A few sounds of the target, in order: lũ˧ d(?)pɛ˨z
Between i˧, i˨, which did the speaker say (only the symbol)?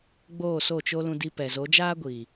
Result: i˧